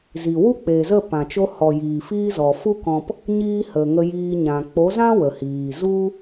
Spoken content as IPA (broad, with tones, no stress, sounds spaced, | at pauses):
z i˨ w u˦ k͡p e˨ z ə˦˨ p ã˨ t͡ʃ o˧ h ɔ˨ j iː˨ f iː˦ z ɔ˨ f u˦ k ɔ̃˧ p | ɲ iː˦ h ə˨ ŋ ə˧ j iː˧ ɲ ã˨ k͡p o˨˦ z ã˦ w ə˨ h iː˨ z u˦